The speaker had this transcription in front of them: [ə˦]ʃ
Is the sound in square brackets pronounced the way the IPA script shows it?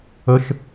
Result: yes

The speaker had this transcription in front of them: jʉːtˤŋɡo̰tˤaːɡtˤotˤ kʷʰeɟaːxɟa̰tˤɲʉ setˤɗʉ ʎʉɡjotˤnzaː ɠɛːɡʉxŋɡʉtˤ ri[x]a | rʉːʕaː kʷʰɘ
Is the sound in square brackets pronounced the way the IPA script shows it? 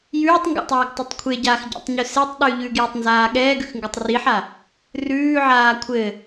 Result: no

